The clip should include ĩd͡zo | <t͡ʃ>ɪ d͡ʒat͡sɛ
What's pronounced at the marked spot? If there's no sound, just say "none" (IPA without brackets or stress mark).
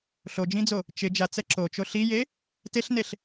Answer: t͡ʃ